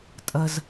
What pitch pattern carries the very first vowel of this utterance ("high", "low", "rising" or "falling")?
low